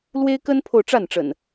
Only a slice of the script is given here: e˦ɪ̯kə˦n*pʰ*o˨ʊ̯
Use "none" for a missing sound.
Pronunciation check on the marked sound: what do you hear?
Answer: pʰ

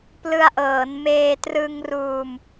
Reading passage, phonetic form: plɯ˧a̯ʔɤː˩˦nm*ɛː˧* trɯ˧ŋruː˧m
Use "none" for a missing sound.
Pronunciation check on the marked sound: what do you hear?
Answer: eː˧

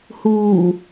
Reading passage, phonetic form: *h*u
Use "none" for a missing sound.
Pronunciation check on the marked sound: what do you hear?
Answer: h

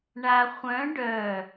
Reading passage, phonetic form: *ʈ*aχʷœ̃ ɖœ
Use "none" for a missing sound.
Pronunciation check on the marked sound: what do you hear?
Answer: ɳ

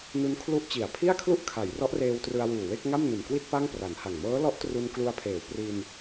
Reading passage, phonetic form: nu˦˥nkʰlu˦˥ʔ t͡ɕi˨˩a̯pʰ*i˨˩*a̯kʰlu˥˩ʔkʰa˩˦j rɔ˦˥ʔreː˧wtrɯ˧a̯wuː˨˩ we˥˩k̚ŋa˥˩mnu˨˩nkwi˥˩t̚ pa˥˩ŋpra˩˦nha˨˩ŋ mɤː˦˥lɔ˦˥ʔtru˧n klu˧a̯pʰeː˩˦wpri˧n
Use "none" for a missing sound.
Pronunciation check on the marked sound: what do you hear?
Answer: i˥˩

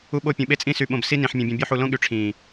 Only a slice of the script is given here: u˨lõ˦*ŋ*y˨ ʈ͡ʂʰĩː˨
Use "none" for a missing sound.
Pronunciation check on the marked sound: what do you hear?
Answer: ɠ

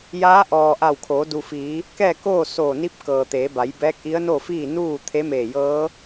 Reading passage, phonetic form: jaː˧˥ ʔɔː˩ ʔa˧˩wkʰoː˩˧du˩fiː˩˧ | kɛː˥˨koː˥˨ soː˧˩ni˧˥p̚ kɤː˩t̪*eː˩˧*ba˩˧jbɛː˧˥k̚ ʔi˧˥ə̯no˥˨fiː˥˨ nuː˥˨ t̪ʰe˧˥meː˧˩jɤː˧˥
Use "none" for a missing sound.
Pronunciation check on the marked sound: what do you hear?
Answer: eː˩˧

